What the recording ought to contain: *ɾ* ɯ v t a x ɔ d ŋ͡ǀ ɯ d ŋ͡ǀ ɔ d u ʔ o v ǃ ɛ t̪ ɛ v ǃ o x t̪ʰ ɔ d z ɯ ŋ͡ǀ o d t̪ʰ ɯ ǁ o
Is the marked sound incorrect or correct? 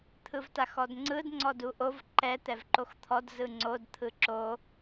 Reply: incorrect